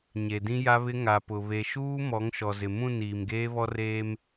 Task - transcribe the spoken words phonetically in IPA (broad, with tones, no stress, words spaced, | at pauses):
ɲe˨dĩ˦ja˦βɪ˦ ŋa˨pʊ˨ βe˨ʃuː˦ mɔ˨˦ŋʃɔ˨zɪ˨ mũ˦˨n iː˨mɡeː˦βɔ˦r eː˦m